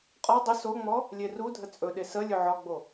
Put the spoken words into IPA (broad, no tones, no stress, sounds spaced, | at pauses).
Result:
qʼ ɔ dˤ ə s o ŋ͡m ɔ | lʲ e r u dʱ ə t͡sʼ ɵ ɗ e s ə lʲ ɵ ʕ ɒ ɡ͡b o